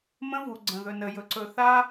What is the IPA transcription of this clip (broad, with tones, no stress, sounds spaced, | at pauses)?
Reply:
m ə̃˦ v u˨ ɡ͡ǀ ə̃˨ ð ɵ˨ n ə˨ j ɵ˨ ǀ ɵ˨ θ a˦